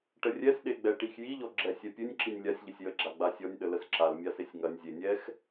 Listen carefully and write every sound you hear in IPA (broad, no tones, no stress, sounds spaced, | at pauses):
ʈ ə rʲ ɛ s ɗ e ɡ͡b ɛ ʈ i x j i ʎ ɔ ɡ͡ǁ ɛ sʲ ɛ pʲ ɨ nʲ ǁ i nʲ lʲ a sʲ ʎ ə sʲ j ə ɡ͡ǁ a ɡ͡b a sʲ ɔ nʲ ɗ ə l ə s ǁ a l mʲ a s e sʲ ŋ ɐ nʲ zʲ e nʲ ɛ x